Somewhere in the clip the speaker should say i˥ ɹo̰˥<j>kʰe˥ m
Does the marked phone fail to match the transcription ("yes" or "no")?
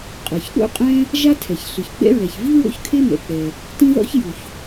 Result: yes